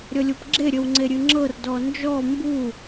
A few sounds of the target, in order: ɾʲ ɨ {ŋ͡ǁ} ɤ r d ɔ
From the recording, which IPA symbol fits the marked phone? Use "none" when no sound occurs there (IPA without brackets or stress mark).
ŋ͡ǁ